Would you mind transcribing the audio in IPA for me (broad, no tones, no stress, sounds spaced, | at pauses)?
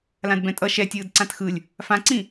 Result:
l ã d b ɛ̃ tʼ ʌ ʃ ɛ tʲ ɯː d ǀ ã t x ɯ lʲ | f ã ǀ ĩ